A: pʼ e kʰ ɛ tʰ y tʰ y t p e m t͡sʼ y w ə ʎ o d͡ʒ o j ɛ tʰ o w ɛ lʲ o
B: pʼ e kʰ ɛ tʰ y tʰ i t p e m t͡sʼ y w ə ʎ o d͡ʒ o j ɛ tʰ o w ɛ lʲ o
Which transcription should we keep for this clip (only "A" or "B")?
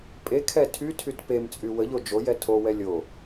A